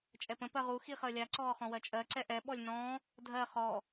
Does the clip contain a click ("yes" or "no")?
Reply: yes